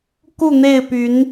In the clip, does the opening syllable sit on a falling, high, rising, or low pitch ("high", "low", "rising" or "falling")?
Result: falling